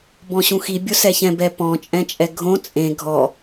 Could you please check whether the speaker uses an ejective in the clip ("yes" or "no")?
yes